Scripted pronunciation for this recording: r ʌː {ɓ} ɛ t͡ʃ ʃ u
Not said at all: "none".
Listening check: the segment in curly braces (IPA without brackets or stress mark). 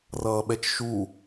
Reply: ɓ